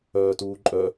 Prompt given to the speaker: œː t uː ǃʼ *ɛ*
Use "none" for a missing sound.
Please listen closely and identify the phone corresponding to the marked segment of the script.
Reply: œ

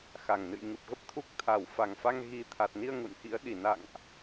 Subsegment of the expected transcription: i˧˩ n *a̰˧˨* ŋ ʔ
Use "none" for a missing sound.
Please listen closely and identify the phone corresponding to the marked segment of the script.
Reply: a̰˧˨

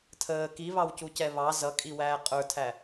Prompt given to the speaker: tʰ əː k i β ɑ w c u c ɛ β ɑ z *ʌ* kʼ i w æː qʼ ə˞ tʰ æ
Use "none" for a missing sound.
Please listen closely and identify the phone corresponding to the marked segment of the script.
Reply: ʌ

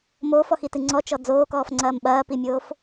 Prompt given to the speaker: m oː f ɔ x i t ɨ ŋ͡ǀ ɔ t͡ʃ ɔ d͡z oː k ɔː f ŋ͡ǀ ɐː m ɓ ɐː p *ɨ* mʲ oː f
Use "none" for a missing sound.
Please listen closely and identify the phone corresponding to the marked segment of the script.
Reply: i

